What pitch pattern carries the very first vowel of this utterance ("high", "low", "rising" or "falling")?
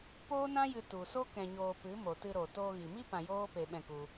high